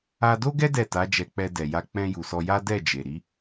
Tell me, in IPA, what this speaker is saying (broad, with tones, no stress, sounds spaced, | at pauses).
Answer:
a˧ d o˦ ɡ ɛ˦ d ɛ˦˨ t a˨˦ d͡ʒ ɛ˧ k͡p ɛ˧ d ɛ˨ j a˧ k͡p ɛ̃˧ j u˨ s ɔ˧ j a˦ d ɛ˦˨ d͡ʒ e˨ ɾ i˨˦